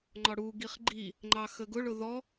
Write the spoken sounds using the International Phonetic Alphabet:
ŋ͡ǃɒɽu ɡiχɡ͡ǃi | ŋ͡ǃɑxəɡʊɭʊ ðɔ

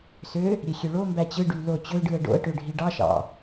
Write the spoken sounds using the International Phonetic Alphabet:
sø | ɾʲexʲøɭombæ t͡ɕɯɖy lo t͡ɕøɖɯə̯ ɖo̰ə̯ʈø ɖʱiɖɑʃɑ̰

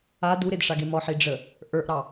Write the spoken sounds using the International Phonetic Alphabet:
a duɾedʂaɡe mɔħi ɖ͡ʐə | ʔə˞ʔɾɑ

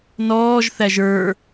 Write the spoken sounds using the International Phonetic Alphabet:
nɔːʒθæʒ ə˞

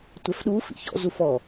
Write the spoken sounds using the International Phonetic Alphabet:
tʷɛfɗuːf ḭçɔ̰ zufɔ

